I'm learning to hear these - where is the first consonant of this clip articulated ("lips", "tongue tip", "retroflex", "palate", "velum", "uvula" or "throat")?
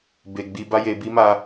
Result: lips